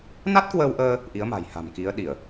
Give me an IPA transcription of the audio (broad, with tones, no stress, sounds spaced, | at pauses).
n a˦˥ t̚ k w əː˧ w ʔ əː˧ | ʔ i˨˦ ə̯ m a̤˨˩ j h a̤˨˩ m k i˨˦ ə̯ ɗ i˧˩˨ ə̯